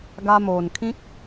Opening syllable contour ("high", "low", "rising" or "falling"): high